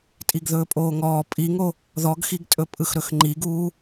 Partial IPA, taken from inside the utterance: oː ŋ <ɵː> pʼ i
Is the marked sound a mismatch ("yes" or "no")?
yes